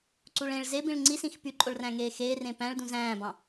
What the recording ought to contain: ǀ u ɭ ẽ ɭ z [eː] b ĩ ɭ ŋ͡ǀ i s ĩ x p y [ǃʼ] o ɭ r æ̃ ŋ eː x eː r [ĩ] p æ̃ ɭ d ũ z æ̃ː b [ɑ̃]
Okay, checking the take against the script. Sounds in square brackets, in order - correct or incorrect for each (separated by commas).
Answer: incorrect, correct, incorrect, correct